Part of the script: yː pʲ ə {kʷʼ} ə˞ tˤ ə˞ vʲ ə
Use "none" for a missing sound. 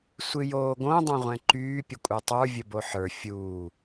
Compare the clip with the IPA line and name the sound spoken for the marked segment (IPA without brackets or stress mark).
kʷʼ